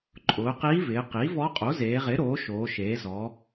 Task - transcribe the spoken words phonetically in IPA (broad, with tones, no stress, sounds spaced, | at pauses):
ǃʼ ʊː˩˧ q iː˧˥ v ɪː˩˧ q iː˩˥ v ɔ˧˥ qʼ o˩˥ z eː˩˧ ʁ ɪː˩˥ ɾ oː˩˥ ʃ oː˩˧ ʃ eː˩˧ z ɔ˩˧